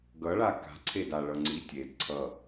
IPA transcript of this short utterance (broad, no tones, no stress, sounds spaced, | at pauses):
ɡ ʌ ɭ a k a̤ ǀʰ e d a ɭ ʌ ŋ͡ǀ i tʲ e d ǀʰ ʌ